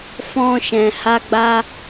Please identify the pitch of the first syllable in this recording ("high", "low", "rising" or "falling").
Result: high